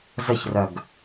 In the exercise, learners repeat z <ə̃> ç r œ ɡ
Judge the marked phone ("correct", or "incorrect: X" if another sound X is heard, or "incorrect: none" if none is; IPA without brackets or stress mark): incorrect: ə